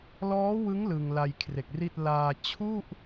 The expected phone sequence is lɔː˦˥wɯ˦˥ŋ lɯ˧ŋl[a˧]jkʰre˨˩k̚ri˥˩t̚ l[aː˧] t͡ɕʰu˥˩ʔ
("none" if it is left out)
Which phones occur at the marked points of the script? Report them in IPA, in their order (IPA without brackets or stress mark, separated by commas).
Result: a˧, aː˧